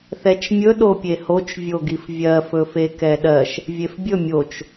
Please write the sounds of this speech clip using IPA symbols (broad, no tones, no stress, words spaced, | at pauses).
θɛt͡ʃmʲɵ ɗopʲehot͡ʃ vʲoɡifvʲɜ fɵfekɛɗɜʃ | vʲefbʲɵ mʲot͡ʃ